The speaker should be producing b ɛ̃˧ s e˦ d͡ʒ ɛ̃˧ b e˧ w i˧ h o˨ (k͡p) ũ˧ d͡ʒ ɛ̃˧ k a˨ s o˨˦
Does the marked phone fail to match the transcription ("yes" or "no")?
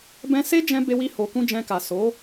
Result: yes